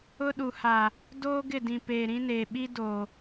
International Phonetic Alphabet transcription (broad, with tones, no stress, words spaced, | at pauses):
ʊ˦ ɗu˨ha˨ | doː˦ɡɪ˦˨dĩ˨ peː˨ɾĩ˦neː˨ ɓi˦ do˨